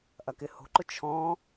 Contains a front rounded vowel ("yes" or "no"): no